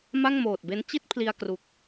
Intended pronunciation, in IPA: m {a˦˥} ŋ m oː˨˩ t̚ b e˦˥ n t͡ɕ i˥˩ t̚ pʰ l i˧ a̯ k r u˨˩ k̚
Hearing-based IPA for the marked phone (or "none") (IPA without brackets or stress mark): a˥˩